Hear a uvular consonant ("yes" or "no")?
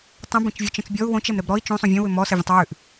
no